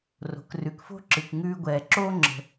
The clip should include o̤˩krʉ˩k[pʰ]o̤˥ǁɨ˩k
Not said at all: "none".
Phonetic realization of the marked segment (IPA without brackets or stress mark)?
f